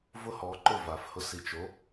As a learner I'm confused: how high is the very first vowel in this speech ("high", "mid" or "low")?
high